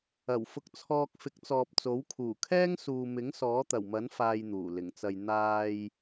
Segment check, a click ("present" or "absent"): absent